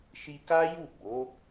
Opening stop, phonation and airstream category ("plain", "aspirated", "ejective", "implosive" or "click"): plain